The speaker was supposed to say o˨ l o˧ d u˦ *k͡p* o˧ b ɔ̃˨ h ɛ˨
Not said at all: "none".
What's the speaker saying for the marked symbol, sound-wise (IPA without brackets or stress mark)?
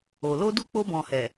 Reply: k͡p